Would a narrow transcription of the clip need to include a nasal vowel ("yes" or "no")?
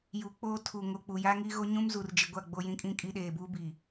yes